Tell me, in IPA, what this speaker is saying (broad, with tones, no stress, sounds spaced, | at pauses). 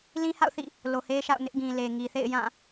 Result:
l ĩ˦ h a̰˦˨ ʊ̯ θ ḭ˦˨ | l o˨ h e˦ ʃ a̰˦˨ ʊ̯ n ɪ˦ ʔ ɡ ĩ˨ l e˨ ŋ i˨ θ ḛ˦˨ ɪ̯ j ã˦˨